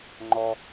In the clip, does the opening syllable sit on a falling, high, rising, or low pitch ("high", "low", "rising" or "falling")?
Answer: high